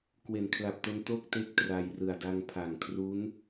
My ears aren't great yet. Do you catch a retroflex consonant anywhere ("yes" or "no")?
no